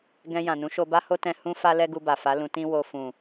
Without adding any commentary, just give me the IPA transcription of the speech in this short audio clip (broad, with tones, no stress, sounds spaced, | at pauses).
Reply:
ɡ ɛ̃˧ j ã˨ n ũ˨˦ ʃ o˧ b a˦ h o˦ t ɛ̃˧ h ũ˦ f a˦ l ɛ˦ ɡ u˧ b a˨ f a˨˦ l ũ˧ t ĩ˦ w o˧ f ũ˨